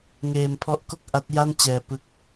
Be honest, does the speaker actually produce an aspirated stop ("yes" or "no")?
yes